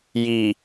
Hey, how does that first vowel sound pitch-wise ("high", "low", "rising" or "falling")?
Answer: low